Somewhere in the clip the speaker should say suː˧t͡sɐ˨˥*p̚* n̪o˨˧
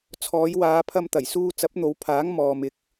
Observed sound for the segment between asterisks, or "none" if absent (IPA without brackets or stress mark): p̚